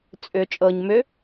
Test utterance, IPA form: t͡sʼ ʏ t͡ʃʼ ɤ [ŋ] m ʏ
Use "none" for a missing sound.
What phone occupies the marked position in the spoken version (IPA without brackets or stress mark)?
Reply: ɲ